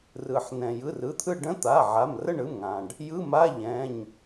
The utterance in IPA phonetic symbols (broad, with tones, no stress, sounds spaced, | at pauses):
r ɯ˩ ħ n ɛ̃˩ j ɯ˩˧˩ r ɯ˩˧˩ t̪ʰ ɯ˦˨ ɖ ə̃˧˥˧ t̪ a˩˧˩ ʕ a˩˧˩ m r ə˦˨ ɳ ɯ˩˧˩ m ŋ ã˩ ɖ | j ɯ˧˥˧ m a˧˥˧ ʎ ɛ̃˩˧˩ ɲ